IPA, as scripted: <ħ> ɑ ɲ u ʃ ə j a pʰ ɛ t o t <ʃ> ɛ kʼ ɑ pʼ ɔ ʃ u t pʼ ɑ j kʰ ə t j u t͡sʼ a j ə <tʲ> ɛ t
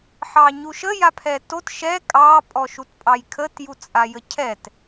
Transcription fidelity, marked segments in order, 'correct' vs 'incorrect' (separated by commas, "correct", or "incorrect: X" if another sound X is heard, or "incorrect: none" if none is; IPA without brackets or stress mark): correct, correct, incorrect: cʰ